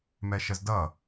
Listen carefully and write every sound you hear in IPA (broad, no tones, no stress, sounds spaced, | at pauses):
m ɛ ʃ ə z d ʌ